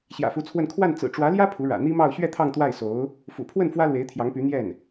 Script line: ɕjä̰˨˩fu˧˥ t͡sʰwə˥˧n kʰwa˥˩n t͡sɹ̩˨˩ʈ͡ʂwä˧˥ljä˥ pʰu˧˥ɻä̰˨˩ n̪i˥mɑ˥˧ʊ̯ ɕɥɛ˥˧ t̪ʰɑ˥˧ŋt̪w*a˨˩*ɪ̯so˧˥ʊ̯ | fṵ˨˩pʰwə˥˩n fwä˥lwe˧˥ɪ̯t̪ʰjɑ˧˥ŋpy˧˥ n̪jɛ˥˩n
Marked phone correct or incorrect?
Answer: incorrect